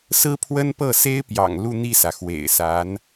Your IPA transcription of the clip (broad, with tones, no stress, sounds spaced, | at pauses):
s ɹ̩˥ pʰ w ə˥ n p ɤ˥˩ s e˥ ɪ̯ p j ɑ̰˨˩ ŋ l u˥˧ n̪ i˥˩ s ä˩ x w ḛ˨˩ ɪ̯ s a˧˥ n